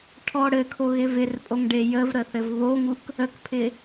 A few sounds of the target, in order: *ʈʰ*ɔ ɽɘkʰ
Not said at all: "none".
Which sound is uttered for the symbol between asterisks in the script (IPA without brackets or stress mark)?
ʈʰ